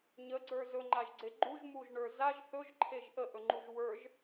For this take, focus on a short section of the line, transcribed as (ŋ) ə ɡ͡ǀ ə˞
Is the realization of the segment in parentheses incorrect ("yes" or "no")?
yes